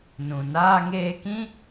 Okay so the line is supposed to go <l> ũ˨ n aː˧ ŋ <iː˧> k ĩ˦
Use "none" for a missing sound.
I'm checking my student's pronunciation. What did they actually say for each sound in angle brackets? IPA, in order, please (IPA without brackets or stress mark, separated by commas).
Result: n, eː˧